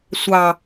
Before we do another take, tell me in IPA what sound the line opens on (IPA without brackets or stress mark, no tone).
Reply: sʷ